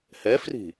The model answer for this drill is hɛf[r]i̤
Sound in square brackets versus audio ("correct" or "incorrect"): correct